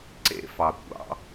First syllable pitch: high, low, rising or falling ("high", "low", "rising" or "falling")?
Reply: high